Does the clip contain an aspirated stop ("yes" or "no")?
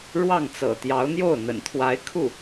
yes